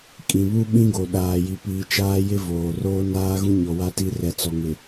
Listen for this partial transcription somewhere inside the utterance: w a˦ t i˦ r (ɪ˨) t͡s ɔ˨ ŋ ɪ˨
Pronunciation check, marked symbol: incorrect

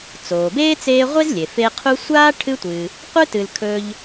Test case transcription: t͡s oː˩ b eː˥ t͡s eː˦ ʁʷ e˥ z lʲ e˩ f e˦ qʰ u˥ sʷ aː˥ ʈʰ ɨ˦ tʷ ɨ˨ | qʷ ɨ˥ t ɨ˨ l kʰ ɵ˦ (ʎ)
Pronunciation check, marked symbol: correct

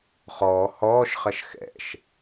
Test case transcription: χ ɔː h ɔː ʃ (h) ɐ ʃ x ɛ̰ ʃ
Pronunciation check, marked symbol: incorrect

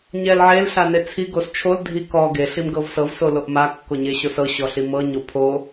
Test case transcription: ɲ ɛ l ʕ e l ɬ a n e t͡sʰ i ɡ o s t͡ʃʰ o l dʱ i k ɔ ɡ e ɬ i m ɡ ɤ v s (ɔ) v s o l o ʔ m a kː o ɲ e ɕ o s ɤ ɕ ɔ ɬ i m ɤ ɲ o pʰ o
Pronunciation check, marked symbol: incorrect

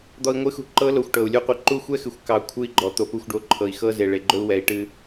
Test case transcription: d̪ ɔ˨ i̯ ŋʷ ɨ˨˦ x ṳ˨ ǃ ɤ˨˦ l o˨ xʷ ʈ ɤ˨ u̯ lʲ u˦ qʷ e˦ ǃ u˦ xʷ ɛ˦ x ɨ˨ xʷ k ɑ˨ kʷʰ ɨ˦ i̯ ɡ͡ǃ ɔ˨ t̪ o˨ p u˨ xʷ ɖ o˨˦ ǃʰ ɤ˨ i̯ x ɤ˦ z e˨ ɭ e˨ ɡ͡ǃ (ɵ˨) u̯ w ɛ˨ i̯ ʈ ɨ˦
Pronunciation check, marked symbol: incorrect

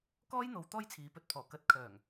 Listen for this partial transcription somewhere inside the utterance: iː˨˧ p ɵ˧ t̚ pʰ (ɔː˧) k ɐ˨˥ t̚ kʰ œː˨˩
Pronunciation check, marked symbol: incorrect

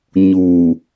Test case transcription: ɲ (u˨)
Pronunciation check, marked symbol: incorrect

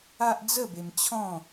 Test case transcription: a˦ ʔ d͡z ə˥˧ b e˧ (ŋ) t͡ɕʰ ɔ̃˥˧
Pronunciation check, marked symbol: incorrect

